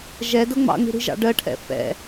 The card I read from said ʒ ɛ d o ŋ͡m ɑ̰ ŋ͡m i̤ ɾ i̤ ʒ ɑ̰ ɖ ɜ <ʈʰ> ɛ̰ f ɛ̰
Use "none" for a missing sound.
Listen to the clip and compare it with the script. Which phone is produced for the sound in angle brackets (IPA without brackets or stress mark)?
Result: ʈʰ